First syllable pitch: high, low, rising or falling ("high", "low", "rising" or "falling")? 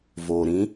low